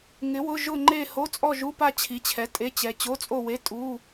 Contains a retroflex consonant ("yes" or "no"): no